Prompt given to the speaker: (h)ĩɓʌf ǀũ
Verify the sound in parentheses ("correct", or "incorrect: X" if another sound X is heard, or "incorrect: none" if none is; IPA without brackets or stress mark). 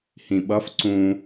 correct